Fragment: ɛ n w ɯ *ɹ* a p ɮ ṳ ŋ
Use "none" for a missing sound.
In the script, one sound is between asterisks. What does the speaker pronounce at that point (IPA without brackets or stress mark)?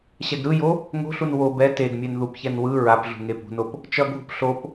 ɹ